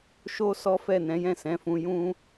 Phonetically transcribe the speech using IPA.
ʃo˦sɔ˦ fɛ˦˨nɛ̃˨˦ jɛ̃˦˨sɛ̃˨˦fũ˧ jũ˦

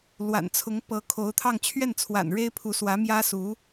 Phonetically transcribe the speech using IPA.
lwa̰˨˩nt͡sʰʊ˧˥ŋ pɤ˧˥kʰo˧˥ʊ̯t̪ʰɑ˥˧ŋ t͡ɕʰɥɛ˥˩nt͡sʰwa̰˨˩n ɻe˥ɪ̯pʰu˧˥swä˧˥ mjä˥su˧˥

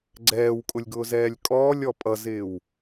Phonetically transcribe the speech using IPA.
ɡ͡ǀɛːwkʼʊlʲɡʊːzɛːlʲ kʼɔːlʲɔ pʼʌzɪːw

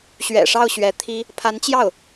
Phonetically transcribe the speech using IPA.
ɕɥɛ̰˨˩ʂɑ˥˩ʊ̯ ɕɥɛ˧˥t̪ʰi˥ | pʰa˧˥nt͡ɕjɑ˥˩ʊ̯

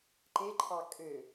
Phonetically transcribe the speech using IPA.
ǃeǃʰɑ kʼø

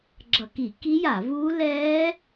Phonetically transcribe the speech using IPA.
ɡ͡ǁʌ˧˩˧ki˧˩˧ ki˦˥ja˧˩˧vuː˦˥ lɛː˦˥

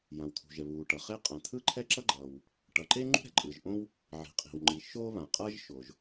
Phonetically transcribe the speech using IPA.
jã˩wt̪ʰṳ˩ʒɛ˩ βuː˩ʈʌ˩χe˥ qʼã˩t̪ʰɯ˥ǃʰɛ˥ ǁʌ˥ɡ͡ǃʌː˩w | ʈʌ˩ǃe˥ ŋ͡ǃṳ˥ɾɛ̤˩ǃʼɯ˩ʒ ʔõ˥w | ʕi̤˩qʼi̤˩w ŋ͡ǃi˩ ʃoː˥βã˩qʼʌː˥ʒʃo˩ʒ

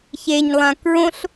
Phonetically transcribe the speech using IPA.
çeɲlˠã kɹõɬ

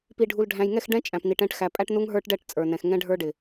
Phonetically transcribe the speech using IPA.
pi˨ɖʱu˨lɖʱæ̃˨j ŋɛ˦˨xɖɛ̃˦ t͡ʃʼæ̃˨pni˨ʈɛ̃˦ʈ xæ˨pʼæ˦ʈ nu˦ŋɦə˞˦ʈɖɛ˦˨ʈ t͡sʼə˞˨nɛ̃˨x ŋɛ̃˦ɖʱə˞˦ɖɪ˨

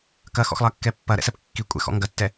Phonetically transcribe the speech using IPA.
kɐxɔ̰xlˠɐkːɛ pːɐɾɛ̰sɛp kːikʷʼɛ̰xɔ̰ ŋɡɐtːɛ

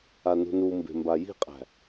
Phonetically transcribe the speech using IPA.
anṳnumbe̤ mbaji̤qʼæ̤

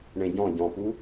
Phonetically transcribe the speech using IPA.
ɳẽɟɔ̃ ɟɔ̃pu

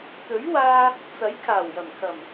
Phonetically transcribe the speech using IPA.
t̪ɵ˨˥ɥwaː˧ | t͡sɐ˨˥jkʰaː˨˩wjɐ˨˩mkʰɐ˨˩m

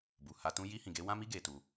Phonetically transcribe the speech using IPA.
bu˨ha˧tũ˦ ji˧hĩ˨ɡe˧ wã˦mi˦ ɡe˧tu˧

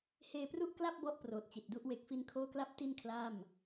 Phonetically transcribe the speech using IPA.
heː˧pru˥˩ʔkla˥˩p̚ bɔ˥˩ʔproː˨˩t̚t͡ɕi˨˩t̚du˥˩ʔ we˨˩k̚fi˧nkʰoː˦˥kla˦˥p̚ ti˥˩nkʰlaː˥˩m

